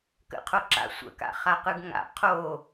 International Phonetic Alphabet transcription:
k ə̰ qʰ o ǁ a̰ sʷ ə̰ k a̰ χ a q ɯ ɡ ŋ a̰ qʰ o

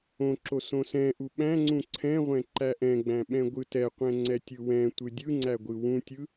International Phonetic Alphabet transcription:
õ ǁ o s õ s ɛ̃ ʔ u ɓ æ̃ ŋ͡ǀ ũ ǀʰ ɛ̃ ʁʷ ɛ̃ ǃ æ ʔ ɛ̃ ɡ͡b æ̃ ɓ ɛ̃ ɡʷ ɯ t ɛ qʷ ɛ̃ ŋ͡ǀ ɛ tʲ ɯ w ɛ̃ tʷ ɯ dʲ ɯ ŋ͡ǀ æ ɡʷ ɯ w ũ tʲ ɯ

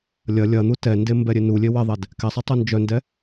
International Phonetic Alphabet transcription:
lʲ ɐ lʲ ɐ n̪ u t ɛ n d e m b ɛ ɾʲ e n u lʲ e w ɛ ðˤ ɛ d | k ɛ sˤ e tˤ u n d͡ʒ œ n d ɛ

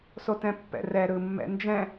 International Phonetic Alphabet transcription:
s o t ɛ̃ pː ɛ̰ r ɛ ɾ ɯ mː ɛ̰ n d͡ʒ ɛ̃

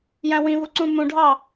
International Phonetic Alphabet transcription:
j æ̃ w ĩ v u ǀ ũ m ũ ɖʱ ɑ

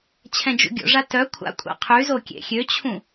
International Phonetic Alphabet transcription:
t͡ɕʰ ɛ̃ d͡ʒ ṵ ɡʲ o̰ ʐ a t œ kʷʰ a̰ kʷʼ a̰ qʰ y z o kʲ ḛ xʲ ø t͡ɕʰ ũ

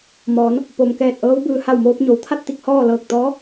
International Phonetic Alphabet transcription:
m ɔː˩˧ n | p o˩ m k ɛː˧˩ t̚ ʔ ɤː˧˥ w b ɯː˧ h a˧˩ w m oː˧ p̚ ɲ o˩˧ w t̪ʰ a˥˨ t̚ t̪ i˥˨ k̚ h ɔː˥˨ l ɤː˧˩ k̚ t̪ ɔː˧˥

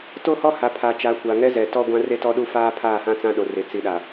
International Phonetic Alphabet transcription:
t o˦ h ɔ˦ h a˨ pʰ a˨ t͡ʃ a˨˦ kʷ a˨ ŋ ɛ˦ z ɛ˨ t ɔ˦ ɡʷ ã˦ r e˦ t ɔ˦ ɗ u˦ f aː˦ pʰ aː˦˨ h ã˦ t͡s ã˦ ɗ o˨ r e˨ t͡s i˨ ɗ a˨

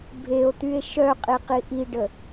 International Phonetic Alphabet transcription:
bʱ e o̯ t̪ y e̯ ʃ œ qʼ i q i ʔ i ɖ ə

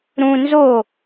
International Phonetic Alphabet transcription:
ɾ ũ n z o

